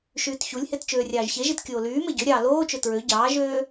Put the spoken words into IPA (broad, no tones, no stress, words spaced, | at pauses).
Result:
ʃyːtçulʲhet t͡ʃøːrʲɑːʒçeʒit kʲoːlyːme ɟøɾʲɑː loːt͡ʃø tɹø ɟɑːʒøː